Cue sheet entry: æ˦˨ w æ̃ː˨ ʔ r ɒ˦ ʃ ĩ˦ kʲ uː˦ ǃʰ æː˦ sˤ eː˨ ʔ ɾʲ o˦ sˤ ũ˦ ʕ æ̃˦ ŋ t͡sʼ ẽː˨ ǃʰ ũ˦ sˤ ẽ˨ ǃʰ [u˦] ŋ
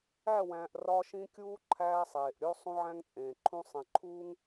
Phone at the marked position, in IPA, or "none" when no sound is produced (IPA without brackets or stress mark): uː˦